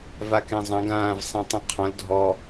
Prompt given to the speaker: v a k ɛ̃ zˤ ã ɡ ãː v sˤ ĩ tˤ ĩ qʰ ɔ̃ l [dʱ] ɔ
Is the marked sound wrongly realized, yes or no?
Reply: no